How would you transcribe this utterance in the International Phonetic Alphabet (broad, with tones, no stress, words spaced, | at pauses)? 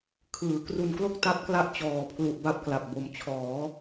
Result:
kʰɯː˩˦ kru˧nklo˥˩k̚ ta˦˥p̚kla˦˥ʔ t͡ɕɔː˨˩pʰlu˨˩ʔ ba˦˥p̚kla˨˩p̚bo˨˩m t͡ɕʰɔː˩˦